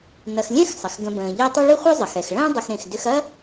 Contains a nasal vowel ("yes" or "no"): yes